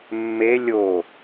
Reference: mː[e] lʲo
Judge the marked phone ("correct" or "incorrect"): correct